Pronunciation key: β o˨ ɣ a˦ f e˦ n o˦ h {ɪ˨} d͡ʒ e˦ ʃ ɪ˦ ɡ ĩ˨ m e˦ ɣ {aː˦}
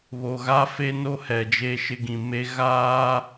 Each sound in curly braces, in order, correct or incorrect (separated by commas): incorrect, correct